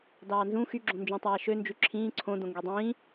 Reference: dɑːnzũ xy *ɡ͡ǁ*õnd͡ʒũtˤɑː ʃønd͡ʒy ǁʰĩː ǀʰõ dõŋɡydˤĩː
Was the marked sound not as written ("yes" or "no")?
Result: no